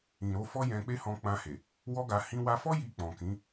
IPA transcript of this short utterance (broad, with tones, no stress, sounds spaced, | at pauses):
ĩ˨ ɾ o˨˦ f ɔ˦ j ɛ̃˧ k͡p e˦ h ɔ̃˧ k͡p ã˧ h e˨ | w ɔ˦ ɡ a˧ h ĩ˧ w a˧ f ɔ˦ j i˧ k͡p ɔ̃˨ k ĩ˨˦